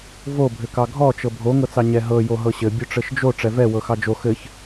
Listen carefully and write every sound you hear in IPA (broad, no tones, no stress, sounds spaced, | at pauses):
v o bʱ ɘ k ɑ ɡʱ ɔ t͡ʃ ɤ bʱ o ŋ ɤ t͡s ɑ ɲ ɛ ɦ ɤ j o ɦ ɤ ɕ ɘ bʲ o ʈ͡ʂ ɘ ʃ d͡ʒ o ʈ͡ʂ ɛ v ɛ w ɤ x ɑ d͡ʒ o x ɘ ç